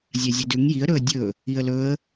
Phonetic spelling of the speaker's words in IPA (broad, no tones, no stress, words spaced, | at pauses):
zʲazʲedʉŋ jiə̯ɾɵə̯ dʲɵ | iə̯lɵə̯